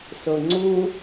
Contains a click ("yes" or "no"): yes